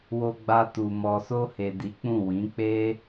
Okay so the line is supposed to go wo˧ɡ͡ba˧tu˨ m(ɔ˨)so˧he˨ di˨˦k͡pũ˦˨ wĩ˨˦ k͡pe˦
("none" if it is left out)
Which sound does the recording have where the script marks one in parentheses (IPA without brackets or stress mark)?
ɔ˨